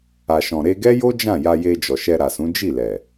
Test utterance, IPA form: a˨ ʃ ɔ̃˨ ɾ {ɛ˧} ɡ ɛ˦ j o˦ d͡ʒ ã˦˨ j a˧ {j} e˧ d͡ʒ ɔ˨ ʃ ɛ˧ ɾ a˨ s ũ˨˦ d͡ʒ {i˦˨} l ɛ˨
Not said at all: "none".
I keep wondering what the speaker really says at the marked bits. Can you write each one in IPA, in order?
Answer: e˧, j, i˦˨

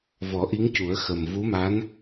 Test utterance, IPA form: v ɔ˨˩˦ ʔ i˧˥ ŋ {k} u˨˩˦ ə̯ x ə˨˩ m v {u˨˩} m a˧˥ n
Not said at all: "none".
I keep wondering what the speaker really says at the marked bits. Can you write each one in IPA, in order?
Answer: c, u˧˥

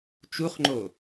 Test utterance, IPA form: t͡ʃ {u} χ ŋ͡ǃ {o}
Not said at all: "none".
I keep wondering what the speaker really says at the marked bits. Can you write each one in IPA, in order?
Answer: u, o

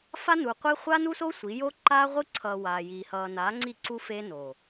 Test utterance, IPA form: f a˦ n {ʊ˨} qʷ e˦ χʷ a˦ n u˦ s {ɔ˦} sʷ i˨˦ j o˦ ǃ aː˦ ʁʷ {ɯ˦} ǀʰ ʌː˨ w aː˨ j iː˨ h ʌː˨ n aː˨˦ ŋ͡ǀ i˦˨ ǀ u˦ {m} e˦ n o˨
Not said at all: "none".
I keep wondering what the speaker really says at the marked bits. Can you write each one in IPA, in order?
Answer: u˨, o˦, ɯ˦, f

